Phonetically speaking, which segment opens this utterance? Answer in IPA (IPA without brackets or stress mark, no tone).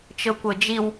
t͡ʃ